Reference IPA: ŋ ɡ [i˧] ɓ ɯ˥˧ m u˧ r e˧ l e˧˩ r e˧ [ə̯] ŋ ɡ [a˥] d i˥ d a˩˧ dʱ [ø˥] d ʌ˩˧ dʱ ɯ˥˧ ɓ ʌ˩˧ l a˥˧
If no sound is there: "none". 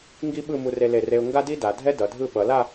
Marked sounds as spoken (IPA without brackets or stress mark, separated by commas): i˥, ʊ̯, a˥, ɛ˥